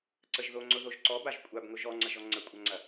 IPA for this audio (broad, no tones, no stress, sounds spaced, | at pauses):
ǀ ə ʒ ð o ŋ͡ǀ ʊ ð o ʒ ǀ ɔ b a ʒ kʷʼ a b ŋ ʊ ʒ ɔ ŋ͡ǀ ɐ ʒ ɔ ŋ͡ǀ ə kʷʼ ɐ ŋ͡ǀ ɐ